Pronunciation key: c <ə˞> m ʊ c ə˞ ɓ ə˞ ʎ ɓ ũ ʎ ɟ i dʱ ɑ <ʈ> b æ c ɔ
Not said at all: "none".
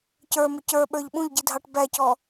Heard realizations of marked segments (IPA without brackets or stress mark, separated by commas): ə˞, ʈ